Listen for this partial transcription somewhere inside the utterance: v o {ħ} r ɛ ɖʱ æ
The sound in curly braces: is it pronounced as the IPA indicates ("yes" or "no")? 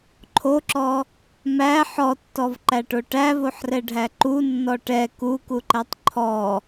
yes